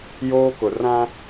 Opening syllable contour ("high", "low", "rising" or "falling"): high